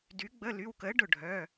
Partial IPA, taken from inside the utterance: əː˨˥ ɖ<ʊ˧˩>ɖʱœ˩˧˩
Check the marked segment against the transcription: correct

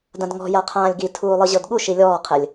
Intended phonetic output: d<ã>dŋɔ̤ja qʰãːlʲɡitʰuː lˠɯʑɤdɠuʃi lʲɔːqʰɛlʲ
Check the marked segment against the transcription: correct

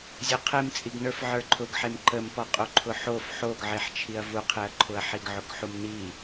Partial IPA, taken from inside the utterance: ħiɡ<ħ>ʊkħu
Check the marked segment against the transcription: incorrect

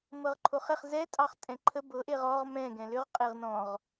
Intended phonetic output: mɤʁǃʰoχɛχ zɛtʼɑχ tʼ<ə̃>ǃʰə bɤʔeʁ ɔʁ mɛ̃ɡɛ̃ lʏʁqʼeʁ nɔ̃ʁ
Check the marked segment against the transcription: incorrect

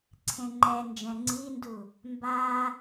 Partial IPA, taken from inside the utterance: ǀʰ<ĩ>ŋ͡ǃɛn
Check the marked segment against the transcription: incorrect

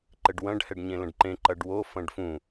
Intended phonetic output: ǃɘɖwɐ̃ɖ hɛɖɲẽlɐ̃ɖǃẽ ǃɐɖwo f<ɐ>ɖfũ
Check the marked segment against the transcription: incorrect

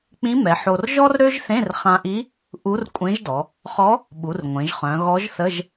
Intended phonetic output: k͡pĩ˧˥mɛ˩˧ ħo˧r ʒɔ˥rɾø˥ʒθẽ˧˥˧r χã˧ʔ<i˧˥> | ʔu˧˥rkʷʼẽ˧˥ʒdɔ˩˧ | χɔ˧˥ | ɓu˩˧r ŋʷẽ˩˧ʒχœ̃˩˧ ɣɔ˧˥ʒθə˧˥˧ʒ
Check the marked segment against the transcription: correct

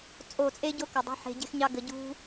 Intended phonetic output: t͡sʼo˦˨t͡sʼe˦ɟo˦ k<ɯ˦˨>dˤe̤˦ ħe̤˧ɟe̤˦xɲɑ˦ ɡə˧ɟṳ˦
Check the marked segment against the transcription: incorrect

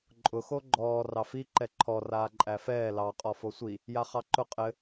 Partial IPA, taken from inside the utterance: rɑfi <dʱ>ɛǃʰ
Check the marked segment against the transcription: incorrect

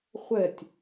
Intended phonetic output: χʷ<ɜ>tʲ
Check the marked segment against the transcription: incorrect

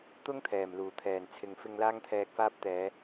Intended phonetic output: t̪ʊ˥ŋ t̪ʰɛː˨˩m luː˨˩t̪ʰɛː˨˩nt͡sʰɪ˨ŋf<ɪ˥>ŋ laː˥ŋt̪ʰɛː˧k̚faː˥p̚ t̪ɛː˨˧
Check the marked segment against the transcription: incorrect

